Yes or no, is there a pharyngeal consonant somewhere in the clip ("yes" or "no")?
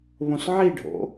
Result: yes